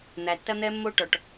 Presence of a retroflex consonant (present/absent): present